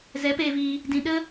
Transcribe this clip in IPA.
z ɛ˨˦ p eː˧ v iː˧ | d ĩ˨ ɗ ə˧

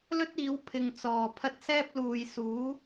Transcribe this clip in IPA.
l ɵ˥ t̚ iː˨˥ w pʰ ɪ˨ ŋ t͡s ɔː˨˩ pʰ ɐ˥ t̚ s ɛː˥ p̚ l uː˨ j s uː˨˥

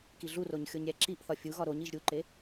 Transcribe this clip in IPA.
k i ɮ u r o ɲ xʲ o ɲ ɾʲ æ ǁ i ʔ θ ɒ fʲ u ɣ ɒ ɾ o ɲ i ʒ ɾʲ u ǃ e

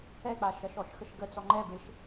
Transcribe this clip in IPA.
ɛ k͡p a ʃ ɐ ʃ ɔ ʃ x ə ʃ ɡ ə t͡s ɔ ŋ͡ǃ ɛ b e ʃ

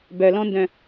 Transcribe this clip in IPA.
b œ l ɔ̃ n d œ̃

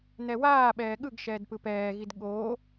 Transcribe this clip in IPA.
n̪ ɛ w aː ɓ ɛː ɠ ɯ ɡ ʃ ɛː d p ɯ p ɛː ɣ i d ɠ oː

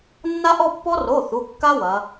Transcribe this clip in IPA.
nː a˦˥ ʔ ɔ˥˧ pː ɔ˦˥ r o˩˧˩ θ u˩˧˩ kː a˦˥ w ɐ˩˧

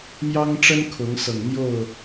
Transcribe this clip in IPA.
m j ɑ˦ ŋ ʈ͡ʂ ə˦ n kʰ ʊ˨˦ ŋ s ɤ˨˩ ŋ n̪ j o˥˨ ʊ̯

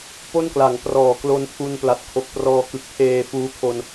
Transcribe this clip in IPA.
p o˥˩ n k l a˩˦ ŋ p r ɔː˩˦ k l o˧ n pʰ u˧ n p l a˨˩ t̚ kʰ o˨˩ k̚ p r ɔː˧ k ɯ˨˩ k̚ pʰ eː˧ f uː˦˥ kʰ o˧ n

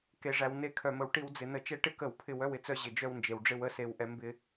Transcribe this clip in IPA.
k e˩ ʐ æ˩ w n e˧˩˧ kʰ œ˩ m ə˩ w ʈ i˧˩˧ w d͡z ɪ˩ n ə˧˩˧ t͡ʃ ɛ˧ ʈ ɪ˥˨ k ə˧˩˧ w pʰ ɪ˧˩˧ w œ˥˨ w ɪ˩ t͡s œ˧ ʑ ɪ˩ d͡ʒ œ˥˨ w n d͡ʒ e˩ w ɖ͡ʐ ɪ˥˨ w ə˥˨ s e˩ w ʔ ɛ˧˩˧ m b ɪ˧

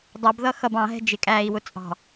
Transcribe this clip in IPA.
dˤ ʌ b ð ʌ x ʌ b ɑ̃ ɦ ɛ̤ d͡ʒ ɪ kʼ æː i̯ w ʊ t͡sʼ ɑ̤

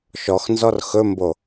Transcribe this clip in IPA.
ʃ ɔ x n z ɔ r x ɵ m b o

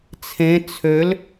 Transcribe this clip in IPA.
t͡sʰ ẽ t͡sʰ ø l

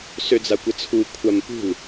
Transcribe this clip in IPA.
s ø d͡z a kʷ ə t͡sʰ u kʷʰ a m p ṳ l

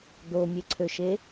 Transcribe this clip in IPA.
d̪ o mʲ e ǀʰ ø ʃ e

